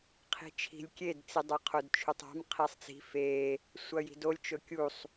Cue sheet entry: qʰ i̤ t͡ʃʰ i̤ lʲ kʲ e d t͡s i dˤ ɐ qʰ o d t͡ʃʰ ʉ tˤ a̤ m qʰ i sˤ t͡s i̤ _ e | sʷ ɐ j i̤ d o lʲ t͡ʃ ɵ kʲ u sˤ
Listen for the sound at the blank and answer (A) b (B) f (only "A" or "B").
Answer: B